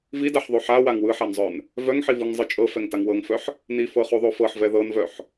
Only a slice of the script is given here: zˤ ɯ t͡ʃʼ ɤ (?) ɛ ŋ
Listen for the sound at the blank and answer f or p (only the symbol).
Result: f